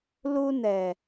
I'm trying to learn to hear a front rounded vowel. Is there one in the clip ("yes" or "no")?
no